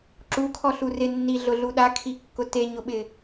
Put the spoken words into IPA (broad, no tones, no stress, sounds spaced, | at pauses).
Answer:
ǁ u kʰ ɔ ɬ u r ɪ nː i ɮ ʊ ɮ u ɗ a kʰ i kː ʊ t e ɲ ʊ ɓ ɪ